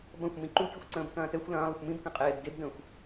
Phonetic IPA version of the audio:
b ɐ̃ xʷ m ĩ ǃ u kʲ ə xʷ ǀ ə̃ː b k ɐ̃ː t ɛ xʷ l ɐ̃ː lˠ ə xʷ m ĩ b k ɐ̃ qʼ eː b d e b d ə̃ː xʷ

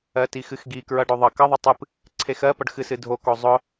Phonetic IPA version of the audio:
ɜ t i x ɨ x ɡ i k ɹ ʌ ɖ o ðˤ ʌ k ʌ ðˤ ʌ tˤ ɨ p | ǀʰ e x ɜ p ʌ ɖ x ɨ s ɨ dʱ o k o zˤ ʊ

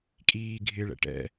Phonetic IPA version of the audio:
kʼ iː ɡʱ ɪ ɭ ɛ̰ ʈ ɛ̰

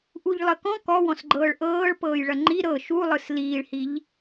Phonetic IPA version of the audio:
ʔ u ʎ lˠ ə k ɔ̃ k ɔ w ɔ̃ s ɡ͡ǃ ɤː ɭ ʔ ɤː ɭ p ɤː j ɭ ɐ ŋ͡ǃ i ɾ ɤ ʃ u lˠ ɯ s l iː ɭ h i ʎ

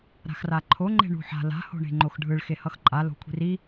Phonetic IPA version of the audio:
ɾ a̤ x r a ǃʰ o ŋ͡ǃ e̤ ɳ ṳ ħ a̤ l a̤ h o̤ ɳ e̤ ŋ͡ǃ o x ɖʱ ɯ ɭ x e h ʌ x ǃʼ a l o̤ kʷʰ i̤ r i

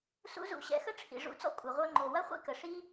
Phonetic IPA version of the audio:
s ṵ˦ z ṵ˦˨ ɕ ɛ̰˧ x ə˦ ʈ͡ʂʰ ḭ˨ ʐ ṵ˨˦ t͡s ɔ̰˧ kʷʼ ɐ˨ ʁʷ œ˧ ŋ͡ǃ o˨ w ɐ˦ χʷ ḭ˦ k ə˨ ʂ i˦

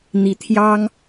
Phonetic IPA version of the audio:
n̪ i˨˩ t̪ʰ j ɑ˥ ŋ

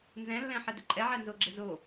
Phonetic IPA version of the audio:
n z ɛ̃ lː ɛ̃ ħ ɛ d ʊ ǃʼ ɛ ʕ ɛ n z o ɡ͡ǁ ɪ z o

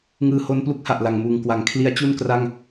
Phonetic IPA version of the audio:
ŋ ɯː˧ h o˦˥ n p l u˦˥ k̚ h a˨˩ ʔ l a˨˩ ŋ m uː˨˩ ŋ k w a˩˦ ŋ kʰ l i˦˥ a̯ t͡ɕ u˥˩ n k r a˥˩ ŋ

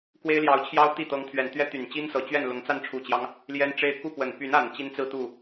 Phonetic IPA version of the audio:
k w e˥ ɪ̯ l j ɑ˧˥ ʊ̯ t͡ɕʰ j ɑ˥ ʊ̯ t̪ i˥˩ t̪ ɤ˧˥ ŋ t̪ʰ ɥ ɛ˨˩ n t̪ ɥ ɛ˥ t̪ y˨˩ n t͡ɕ i˥ n s ɤ˨˩ t͡ɕ ɥ ɛ˥˩ n l ʊ˧˥ ŋ t͡s a˥˩ n ʈ͡ʂʰ u˨˩ t͡ɕ j ɑ˦ ŋ | l j ɛ˥ n ʈ͡ʂ e˥ ɪ̯ k u˥˩ p w ə˨˩ n p y˧˥ n a˨˩ n t͡ɕ i˥ n t͡s ɹ̩˥˧ t̪ u˥˩

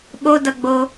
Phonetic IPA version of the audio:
ɓ o d ʌ ɡ͡b o

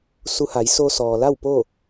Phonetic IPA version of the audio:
s u˧ h a˩˧ j s o˧ s ɔː˩ l a˥˨ w p o˥˨

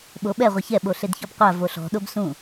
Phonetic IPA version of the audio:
ɓ o ɓ ɛ ʁʷ ɛ ç ɛ ɓ o ɬ e d ç ɔ b qʷ a v o ɬ ɔ̤ ɗ o b s ũ

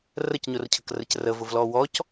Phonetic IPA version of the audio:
r ə c ɲ ʊ r cʰ ə k r ə c r ə v ʊ v l ɔ w ɔ c

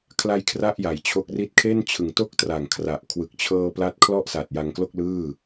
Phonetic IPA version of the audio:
kʰ l a˧ j kʰ r a˥˩ ʔ j a˩˦ j t͡ɕʰ o˦˥ k̚ r i˥˩ t̚ kʰ e˥˩ n t͡ɕʰ ɯ˨˩ ŋ t o˦˥ k̚ t r a˨˩ ŋ kʰ r a˨˩ ʔ kʰ w ɯ˨˩ k̚ t͡ɕʰ ɤː˧ p l a˦˥ t̚ kʰ l ɔ˥˩ ʔ s a˨˩ t̚ j a˧ ŋ k l o˥˩ k̚ l ɯː˥˩

